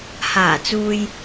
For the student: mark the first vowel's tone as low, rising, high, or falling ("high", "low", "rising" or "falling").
low